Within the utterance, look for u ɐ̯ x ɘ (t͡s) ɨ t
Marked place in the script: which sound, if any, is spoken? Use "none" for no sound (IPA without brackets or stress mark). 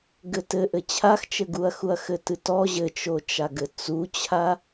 t